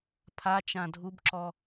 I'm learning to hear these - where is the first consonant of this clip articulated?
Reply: lips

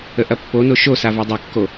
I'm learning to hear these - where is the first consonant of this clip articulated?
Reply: throat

